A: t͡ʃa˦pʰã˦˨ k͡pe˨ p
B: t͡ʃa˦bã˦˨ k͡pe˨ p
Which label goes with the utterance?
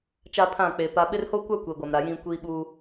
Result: A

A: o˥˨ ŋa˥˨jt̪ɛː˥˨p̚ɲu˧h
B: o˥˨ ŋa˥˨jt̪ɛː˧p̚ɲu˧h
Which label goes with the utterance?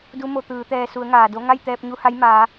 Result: B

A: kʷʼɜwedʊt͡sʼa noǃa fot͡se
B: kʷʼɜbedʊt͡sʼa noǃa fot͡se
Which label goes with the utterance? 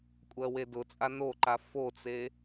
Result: A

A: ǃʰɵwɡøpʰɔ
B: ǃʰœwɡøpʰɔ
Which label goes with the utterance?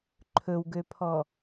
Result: A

